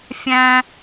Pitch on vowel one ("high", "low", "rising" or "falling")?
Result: high